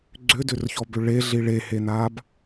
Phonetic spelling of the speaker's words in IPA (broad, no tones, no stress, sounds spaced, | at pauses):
ɡ͡ǀ ʏ d ʏ r ç ɔ b ʏ ɭ e ɮ i ɭ e h e n a b